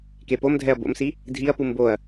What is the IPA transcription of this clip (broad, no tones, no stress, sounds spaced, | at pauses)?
k e p o m dʱ ɛ ɐ̯ b o̰ m s i | dʱ i ɐ̯ p u m b o ɐ̯